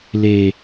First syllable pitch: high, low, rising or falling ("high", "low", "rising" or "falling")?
low